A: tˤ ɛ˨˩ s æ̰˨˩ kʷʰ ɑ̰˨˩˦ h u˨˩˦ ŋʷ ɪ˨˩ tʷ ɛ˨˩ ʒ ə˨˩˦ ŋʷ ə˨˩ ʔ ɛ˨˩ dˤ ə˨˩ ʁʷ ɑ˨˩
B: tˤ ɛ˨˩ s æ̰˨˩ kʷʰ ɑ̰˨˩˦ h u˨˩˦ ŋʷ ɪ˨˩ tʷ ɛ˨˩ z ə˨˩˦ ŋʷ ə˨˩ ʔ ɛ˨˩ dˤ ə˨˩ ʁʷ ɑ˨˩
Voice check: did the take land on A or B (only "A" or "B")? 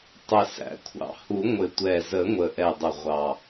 B